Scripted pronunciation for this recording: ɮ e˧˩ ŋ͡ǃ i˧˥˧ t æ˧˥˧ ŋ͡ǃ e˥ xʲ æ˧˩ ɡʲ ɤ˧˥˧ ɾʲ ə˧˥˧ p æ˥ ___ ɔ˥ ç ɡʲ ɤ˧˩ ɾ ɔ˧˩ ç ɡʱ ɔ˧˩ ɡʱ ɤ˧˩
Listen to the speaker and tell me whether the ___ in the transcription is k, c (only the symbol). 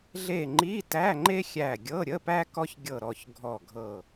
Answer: k